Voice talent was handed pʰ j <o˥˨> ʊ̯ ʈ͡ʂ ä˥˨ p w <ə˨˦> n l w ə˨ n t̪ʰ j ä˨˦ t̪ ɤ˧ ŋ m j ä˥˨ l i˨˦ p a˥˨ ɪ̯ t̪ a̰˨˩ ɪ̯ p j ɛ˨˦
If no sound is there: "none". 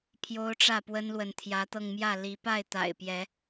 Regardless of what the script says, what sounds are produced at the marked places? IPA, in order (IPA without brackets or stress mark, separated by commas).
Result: o˦, ə˦